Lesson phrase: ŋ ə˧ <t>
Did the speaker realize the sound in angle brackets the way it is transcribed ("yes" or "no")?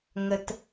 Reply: yes